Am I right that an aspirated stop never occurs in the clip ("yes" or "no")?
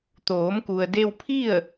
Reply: no